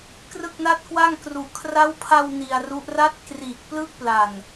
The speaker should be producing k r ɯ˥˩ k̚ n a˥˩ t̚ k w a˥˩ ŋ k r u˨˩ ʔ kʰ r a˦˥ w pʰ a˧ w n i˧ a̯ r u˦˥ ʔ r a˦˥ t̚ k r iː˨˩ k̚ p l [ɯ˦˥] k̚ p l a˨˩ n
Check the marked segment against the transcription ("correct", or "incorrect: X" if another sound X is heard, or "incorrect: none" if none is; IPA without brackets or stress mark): correct